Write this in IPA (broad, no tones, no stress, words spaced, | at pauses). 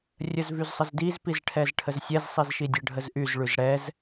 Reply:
rʲəzvyzsˤəzdiz pizʈʰɛzʈʰəzsʲɛz sˤizʃidʲə ɖʱəzʔyz ɭyzɽɛz